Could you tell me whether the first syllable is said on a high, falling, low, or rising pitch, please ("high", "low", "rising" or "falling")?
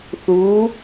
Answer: rising